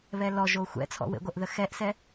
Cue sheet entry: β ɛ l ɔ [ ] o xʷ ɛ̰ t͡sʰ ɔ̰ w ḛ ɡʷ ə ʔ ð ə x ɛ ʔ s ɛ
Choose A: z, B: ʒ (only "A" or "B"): B